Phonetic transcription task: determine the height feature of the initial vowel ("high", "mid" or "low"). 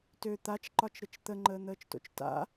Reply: mid